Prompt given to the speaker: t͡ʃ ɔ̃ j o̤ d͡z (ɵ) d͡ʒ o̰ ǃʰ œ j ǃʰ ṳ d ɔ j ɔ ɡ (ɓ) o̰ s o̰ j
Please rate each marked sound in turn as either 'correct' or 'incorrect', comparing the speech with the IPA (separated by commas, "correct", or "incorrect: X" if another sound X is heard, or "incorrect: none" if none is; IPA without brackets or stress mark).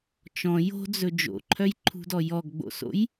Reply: correct, incorrect: ɡ͡b